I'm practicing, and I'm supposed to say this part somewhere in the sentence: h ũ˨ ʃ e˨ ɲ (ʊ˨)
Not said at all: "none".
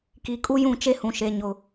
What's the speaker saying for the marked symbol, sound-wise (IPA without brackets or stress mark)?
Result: ʊ˨